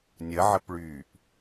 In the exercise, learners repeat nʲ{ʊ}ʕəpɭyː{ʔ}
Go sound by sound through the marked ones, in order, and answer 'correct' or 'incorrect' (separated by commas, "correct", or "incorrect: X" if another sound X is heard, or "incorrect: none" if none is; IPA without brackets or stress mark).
incorrect: ə, correct